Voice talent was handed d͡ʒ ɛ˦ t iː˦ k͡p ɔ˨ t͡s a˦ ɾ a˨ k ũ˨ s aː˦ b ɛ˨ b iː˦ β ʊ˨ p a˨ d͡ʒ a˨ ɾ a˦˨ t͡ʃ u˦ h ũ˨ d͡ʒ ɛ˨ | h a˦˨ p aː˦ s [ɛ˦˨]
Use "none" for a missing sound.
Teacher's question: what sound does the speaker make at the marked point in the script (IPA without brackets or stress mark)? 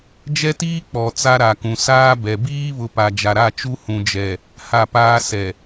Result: ɛ˨